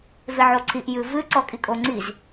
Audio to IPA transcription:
v e ʕ o ǀʰ i ʔ j ɨ v ɨ ǀ ɔ kʼ i kʼ o ŋ͡ǀ i z

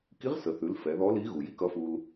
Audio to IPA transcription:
k i˧˥ ʁ s ə˩ θ ʉ˩˧ l f ɛ˩˧ ð ɔ˧˥ l i˧˥ ɣ u˩ j i˥ k ʌ˧˥ f u˧ l

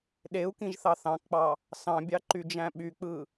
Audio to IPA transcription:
ɗ e u̯ k ĩ ʒ θ ɑ θ ɑ̃ k k͡p ɑ | s ɑ̃ bʲ ɑ ǃ y d͡ʒ æ̃ ɓ y k͡p ɯ

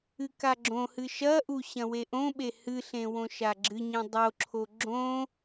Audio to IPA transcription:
ɨ k a ɡ͡ǁ õ h ɨ ʃ ɐ ʔ u ɕ ɐ̃ w e ʔ õ ɓ e h ɨ ɬ ẽ w õ ʃ a ɡ͡ǁ ɨ ɲ ẽ dˤ o ǁʰ o ɡ͡ǁ õ

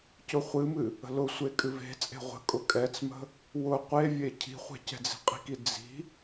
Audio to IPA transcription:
c ʊ χʷ ɨ m ɨ | ə̤ l ʊ sʷ e kʼ ɨ v e̤ t͡sʼ e̤ ʁʷ ə̤ kʼ ʊ kʼ ɛ t͡s m ə̤ | w ʊ qʷ e vʲ e cʰ i̤ χʷ ɛ̤ c ɛ̤ d͡z i̤ qʼ i̤ k i d͡z i̤

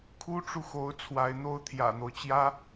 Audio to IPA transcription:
kʰ u˥ ʈ͡ʂ u˨ x o˧˥ ʊ̯ t͡sʰ w a˧˥ ɪ̯ n̪ o˥ ʊ̯ t̪ʰ j ä̰˨˩ n̪ o˦ ʊ̯ t͡ɕ j ä˥

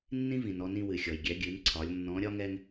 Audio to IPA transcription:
nː ĩ˥ v ĩ˩ n ɔ˧ n ĩ˧ w ɨ˩ xʲ ɔ˩ j ɡʲ ɛ˩˧ ɡʲ ɨ˩˧ n ǀʰ ɒ˩˧ lʲ nː ɔ̃˧˥ ɾʲ ɒ˥ ŋ ɛ˥ ŋ

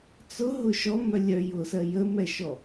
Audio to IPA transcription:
t͡s ʊ ɦ ʊ ʃ ɔ m œ lʲ œ j ʊ s ɜ j ə m ɛ ʃ ɔ

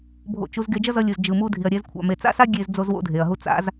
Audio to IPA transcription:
bʱ o̰˧ t͡ʃ u˧ z ɡ e˧ d͡ʒ ʌ˦ z ʌ˧ lʲ ɯ˨ z d͡ʒ ɯ˨ m u˧ dʱ i˨ ɐ̯ ɾʲ ɛ˧ z kʷʰ a̰˨ m e˨ t͡s a̰˦ s a˦ ɡʲ e˦ z d͡z o˦ z w o̰˦ dʱ e˨ ɐ̯ ɦ u˦ t͡s a̰˦ z

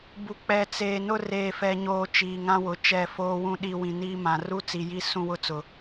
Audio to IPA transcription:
b u˨ k͡p ɛ˨ t͡s eː˨ n ʊ˦ r eː˨ f ɛ˨ ɲ oː˨ t͡ʃ iː˨ ŋ ã˦ w ʊ˨ t͡ʃ ɛ˦˨ f oː˦ w ũ˦ ɗ i˦ w ĩ˨ n iː˦ m ã˨ r u˦ t͡s i˨ j i˦ s ũ˦ w ʊ˦ t͡s ʊ˨

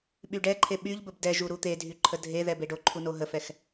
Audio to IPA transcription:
ɓ y ɖ ɛ ǃʰ e ɓ y ʎ b ə b d ɛ ʒ u ɾ u t̪ e dʱ y ǃʰ ə dʱ e ð ɛ b e ɖ o ǃʰ u n o ɦ ə f ɛ x

